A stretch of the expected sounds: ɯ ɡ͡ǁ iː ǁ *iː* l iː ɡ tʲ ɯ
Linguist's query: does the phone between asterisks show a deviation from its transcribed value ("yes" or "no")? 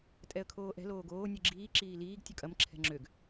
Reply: no